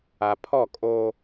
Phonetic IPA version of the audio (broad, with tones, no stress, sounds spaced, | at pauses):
a˨ pʰ ɔ˦˨ kʼ oː˦